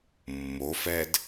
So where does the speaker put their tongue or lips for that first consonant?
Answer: lips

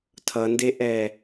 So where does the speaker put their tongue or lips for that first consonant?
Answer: tongue tip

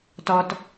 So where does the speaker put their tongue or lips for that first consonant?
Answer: tongue tip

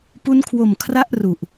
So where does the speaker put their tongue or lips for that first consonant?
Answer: lips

